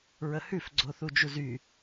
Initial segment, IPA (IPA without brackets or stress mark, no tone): ɹ